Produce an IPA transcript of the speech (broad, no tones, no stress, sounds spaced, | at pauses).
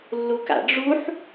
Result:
lː u k a̰ ɖ͡ʐ u ħ